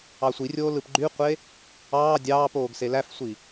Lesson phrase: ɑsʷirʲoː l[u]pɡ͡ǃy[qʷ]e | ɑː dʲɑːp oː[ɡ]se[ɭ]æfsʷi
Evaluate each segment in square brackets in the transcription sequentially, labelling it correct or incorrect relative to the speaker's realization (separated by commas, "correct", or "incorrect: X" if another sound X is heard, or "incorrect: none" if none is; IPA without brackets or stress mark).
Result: incorrect: ɯ, correct, correct, incorrect: l